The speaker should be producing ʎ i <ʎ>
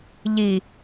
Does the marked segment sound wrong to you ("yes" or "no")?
yes